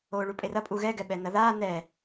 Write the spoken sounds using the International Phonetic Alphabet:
oːɭupʼerɐ pʼuɣɛ ɡɛɓɛnɐðaː nɛ

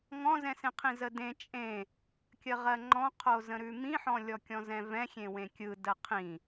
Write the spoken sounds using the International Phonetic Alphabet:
ŋɔ̃zɛ̃sẽqʰĩ zədẽ t͡ʃʼẽ | kʲəʁɜŋ͡ǃɔ̃qʰo zə̃ɾʉmĩħɔ̃ lʲɔkʲɔ̃zɛ̃vɛ̃ xʲẽwẽkʲɯdə qʰĩ

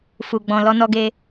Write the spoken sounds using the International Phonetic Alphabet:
fu˨ɡ͡bɔ̃˨ lɔ˧nɔ˧ɡe˧

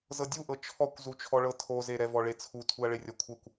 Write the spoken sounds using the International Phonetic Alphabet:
zɤdʲuʔɤ t͡ʃʰɔkʷzut͡ʃʰɔɭɤ tʰoze ɾɛvɔɭet͡sʰu tʰuɐ̯ɭerʲɔkʷʰɤkʷ

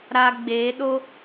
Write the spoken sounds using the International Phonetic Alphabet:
ɾa˧ɡ͡beː˨˦ɗo˦

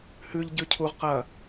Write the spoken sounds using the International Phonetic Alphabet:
hʉʎ ɟʉcʰuʁ qɐ

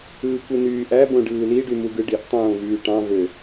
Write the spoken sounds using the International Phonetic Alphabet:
ɯːkʷɯnyːʔæ bõɖɯːli ɖymuɡɯɖiʔ tˤõːvyːʈɑ̃ vø

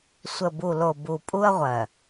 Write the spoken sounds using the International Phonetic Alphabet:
sʷə˨bu˨lo˨ bu˨pʼu˦ɐ̯ʁʷɜ˨

